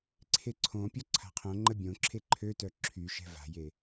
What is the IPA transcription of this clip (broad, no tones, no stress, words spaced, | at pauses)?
ǀʰeǀʰõpʲɔ ǀʰa̤qʰõŋ͡ǃə bʲõǁʰe ǃʰøtœ ǁʰyʃɛ̤ va̤je